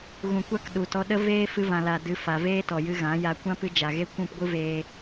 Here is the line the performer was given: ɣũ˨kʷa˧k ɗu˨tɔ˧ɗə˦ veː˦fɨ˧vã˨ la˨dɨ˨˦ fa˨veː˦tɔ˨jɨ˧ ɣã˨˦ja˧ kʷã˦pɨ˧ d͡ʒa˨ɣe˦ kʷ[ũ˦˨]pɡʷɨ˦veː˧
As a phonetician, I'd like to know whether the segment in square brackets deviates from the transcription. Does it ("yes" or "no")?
no